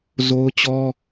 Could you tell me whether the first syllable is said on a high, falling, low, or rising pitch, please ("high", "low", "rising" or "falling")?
high